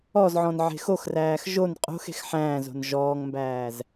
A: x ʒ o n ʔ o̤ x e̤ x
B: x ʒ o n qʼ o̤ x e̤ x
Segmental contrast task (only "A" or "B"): B